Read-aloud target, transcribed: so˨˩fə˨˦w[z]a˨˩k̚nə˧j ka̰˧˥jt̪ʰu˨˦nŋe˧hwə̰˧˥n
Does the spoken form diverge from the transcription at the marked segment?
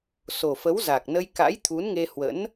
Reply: no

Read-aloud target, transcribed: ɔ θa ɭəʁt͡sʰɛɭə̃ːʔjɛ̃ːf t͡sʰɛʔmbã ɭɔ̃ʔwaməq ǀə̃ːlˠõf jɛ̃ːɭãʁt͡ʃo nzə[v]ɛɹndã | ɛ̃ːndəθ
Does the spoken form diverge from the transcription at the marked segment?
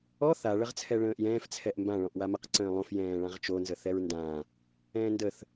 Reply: yes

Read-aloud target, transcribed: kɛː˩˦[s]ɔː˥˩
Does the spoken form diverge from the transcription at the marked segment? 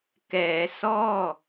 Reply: no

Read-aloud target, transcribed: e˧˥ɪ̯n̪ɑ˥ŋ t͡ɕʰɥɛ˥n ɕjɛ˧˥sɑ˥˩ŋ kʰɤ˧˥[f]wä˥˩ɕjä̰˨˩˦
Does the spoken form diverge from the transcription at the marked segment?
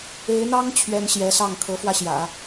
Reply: no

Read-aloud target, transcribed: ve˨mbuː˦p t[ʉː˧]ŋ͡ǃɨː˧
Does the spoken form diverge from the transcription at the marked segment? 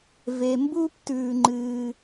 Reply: no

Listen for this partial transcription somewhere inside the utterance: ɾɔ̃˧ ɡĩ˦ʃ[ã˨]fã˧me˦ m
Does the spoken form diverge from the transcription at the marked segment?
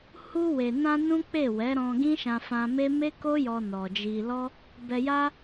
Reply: yes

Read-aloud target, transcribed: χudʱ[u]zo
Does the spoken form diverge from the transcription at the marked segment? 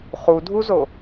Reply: no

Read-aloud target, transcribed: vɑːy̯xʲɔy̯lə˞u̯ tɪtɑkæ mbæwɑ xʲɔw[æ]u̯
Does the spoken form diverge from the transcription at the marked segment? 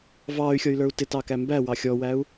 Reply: no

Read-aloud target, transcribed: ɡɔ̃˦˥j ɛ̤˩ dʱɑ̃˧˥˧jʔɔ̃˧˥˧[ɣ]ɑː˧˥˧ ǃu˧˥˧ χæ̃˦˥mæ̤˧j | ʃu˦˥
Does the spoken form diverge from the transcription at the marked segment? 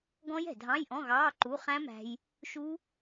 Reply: no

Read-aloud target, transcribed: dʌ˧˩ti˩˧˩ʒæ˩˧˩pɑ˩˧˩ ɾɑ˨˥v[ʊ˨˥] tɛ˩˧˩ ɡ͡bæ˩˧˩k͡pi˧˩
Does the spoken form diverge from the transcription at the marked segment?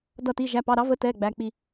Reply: yes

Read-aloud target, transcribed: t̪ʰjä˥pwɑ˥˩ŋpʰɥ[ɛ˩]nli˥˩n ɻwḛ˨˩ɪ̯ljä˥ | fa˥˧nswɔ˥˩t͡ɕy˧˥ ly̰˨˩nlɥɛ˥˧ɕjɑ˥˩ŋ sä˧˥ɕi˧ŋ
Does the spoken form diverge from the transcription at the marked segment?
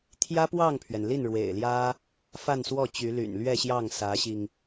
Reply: no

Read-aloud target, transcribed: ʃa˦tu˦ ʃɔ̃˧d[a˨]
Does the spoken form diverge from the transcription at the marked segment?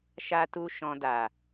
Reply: no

